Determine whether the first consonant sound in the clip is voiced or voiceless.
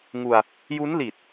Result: voiced